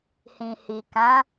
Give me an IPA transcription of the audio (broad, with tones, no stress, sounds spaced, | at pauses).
h ĩ˨ h i˨ k ã˨˦